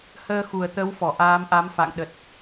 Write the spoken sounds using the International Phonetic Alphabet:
həː˧ xu˨˩ə̯t̪ə˨˦wfɔ˧˩ ʔaː˨˦mʔa˨˦mfa̰˧˨ŋ ɗə˨˩t̚

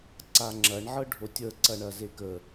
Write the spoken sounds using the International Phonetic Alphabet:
ǀaŋ͡ǁɐɳ ʕɤɖʱotʲəː ǀɐɳɐzekə

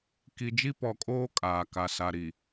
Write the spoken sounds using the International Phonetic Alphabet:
ki˨d͡ʒi˦pɔ˨kʼoː˦ kʼaː˨ka˨ sa˨ ɾi˨

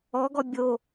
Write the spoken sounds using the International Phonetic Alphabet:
ɔɡɔ bʲo

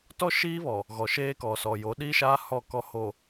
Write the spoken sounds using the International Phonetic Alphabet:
tɔ˦ʃiː˦βɔ˨ | ɣɔ˨ʃeː˦kɔ˨sɔ˨ jo˨˦ɗiː˦ʃaː˦ hɔ˦˨ kɔ˦ ho˨

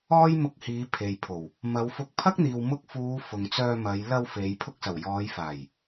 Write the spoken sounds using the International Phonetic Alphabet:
ɔː˥jmʊ˧k̚ hiː˨˧ pʰe˨jpʰo˨˩w | mɐ˨˧wfʊ˧k̚ pʰɐ˥k̚n̪iː˨w mʊ˧k̚fuː˨˧ fʊ˨ŋt͡sœː˧mɐ˨˧j lɐ˧w fe˨˧j pʰʊ˧k̚sɐ˨˩w jɔː˨˧jfaː˨˩j

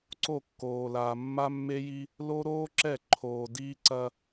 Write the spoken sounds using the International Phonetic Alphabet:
ǀo˦˨kːoː˨ laː˨mːa˦mːe˦ ji˦ | lo˦ɾoː˦ǁɛ˦˨ ǃʰoː˨diː˦ ǀɐ˦

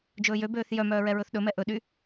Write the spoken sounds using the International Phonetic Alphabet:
d͡ʒɵːjøbøːθ jœmœː ɹɛɹɵθɗɵmɛ ʔɵɗy

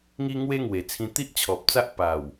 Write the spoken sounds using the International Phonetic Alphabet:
ŋi˦ ŋwe˦ŋwe˨˩t͡sʰĩ˧ t̪i˦ʔt͡ɕʰɔ˨p̚t͡sa˦ʔ pa˨˩w

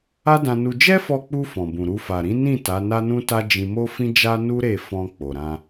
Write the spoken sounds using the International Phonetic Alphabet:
a˦dã˧nu˧ d͡ʒɛ˦fɔ˧k͡pu˧ fɔ̃˨bũ˨ɾu˧ fa˨ ɾĩ˨˦nĩ˦˨ ta˨˦na˦nũ˦ta˦ d͡ʒĩ˧mo˦fĩ˦d͡ʒa˦ nu˦ɾe˦˨ fɔ̃˧ k͡po˨ɾã˧

